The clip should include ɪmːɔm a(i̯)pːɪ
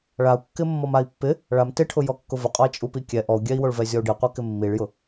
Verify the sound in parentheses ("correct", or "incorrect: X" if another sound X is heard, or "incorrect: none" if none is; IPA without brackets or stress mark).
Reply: correct